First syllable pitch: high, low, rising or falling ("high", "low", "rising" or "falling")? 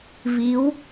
rising